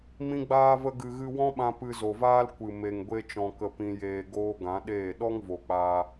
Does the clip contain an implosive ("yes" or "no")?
yes